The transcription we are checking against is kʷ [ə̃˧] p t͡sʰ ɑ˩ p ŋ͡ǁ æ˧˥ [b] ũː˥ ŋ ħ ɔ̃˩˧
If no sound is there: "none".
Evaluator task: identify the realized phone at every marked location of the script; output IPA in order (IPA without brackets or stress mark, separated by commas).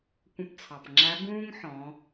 ə̃˧, b